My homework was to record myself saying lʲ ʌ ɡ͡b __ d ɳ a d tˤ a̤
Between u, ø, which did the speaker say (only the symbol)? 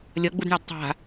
u